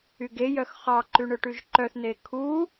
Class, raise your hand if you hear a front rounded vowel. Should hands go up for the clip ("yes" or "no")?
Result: yes